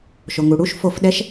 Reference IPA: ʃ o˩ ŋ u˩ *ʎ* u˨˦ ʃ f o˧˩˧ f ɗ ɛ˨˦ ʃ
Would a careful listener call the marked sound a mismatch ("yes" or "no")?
yes